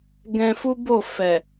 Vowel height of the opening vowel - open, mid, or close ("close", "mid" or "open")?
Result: mid